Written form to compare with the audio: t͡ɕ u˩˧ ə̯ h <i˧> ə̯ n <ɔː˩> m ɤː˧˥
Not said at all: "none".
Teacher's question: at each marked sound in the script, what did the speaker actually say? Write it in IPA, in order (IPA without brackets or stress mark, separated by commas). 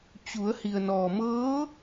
i˩, ɔː˩